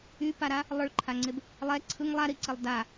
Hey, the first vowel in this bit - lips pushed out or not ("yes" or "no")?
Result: yes